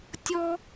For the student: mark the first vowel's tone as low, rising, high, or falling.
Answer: high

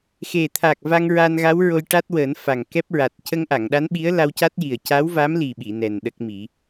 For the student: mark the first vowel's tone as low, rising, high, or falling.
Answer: low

